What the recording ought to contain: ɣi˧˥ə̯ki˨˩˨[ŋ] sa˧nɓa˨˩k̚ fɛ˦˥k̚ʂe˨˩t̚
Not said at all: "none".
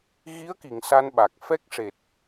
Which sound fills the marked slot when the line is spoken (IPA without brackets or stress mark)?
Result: ŋ